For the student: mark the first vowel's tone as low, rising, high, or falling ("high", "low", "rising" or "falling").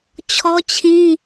high